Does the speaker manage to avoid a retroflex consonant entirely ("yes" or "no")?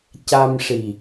no